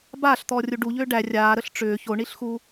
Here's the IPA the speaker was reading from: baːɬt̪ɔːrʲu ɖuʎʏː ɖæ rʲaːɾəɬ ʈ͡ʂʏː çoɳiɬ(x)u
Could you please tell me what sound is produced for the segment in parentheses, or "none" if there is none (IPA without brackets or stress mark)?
x